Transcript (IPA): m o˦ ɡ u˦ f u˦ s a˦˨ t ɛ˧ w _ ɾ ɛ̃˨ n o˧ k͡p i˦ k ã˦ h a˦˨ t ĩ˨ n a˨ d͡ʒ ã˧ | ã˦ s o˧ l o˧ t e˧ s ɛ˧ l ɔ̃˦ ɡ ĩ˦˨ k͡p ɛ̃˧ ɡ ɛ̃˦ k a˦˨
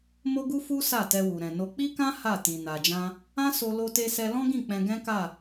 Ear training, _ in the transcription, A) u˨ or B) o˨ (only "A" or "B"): A